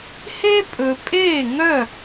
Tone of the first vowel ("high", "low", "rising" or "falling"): high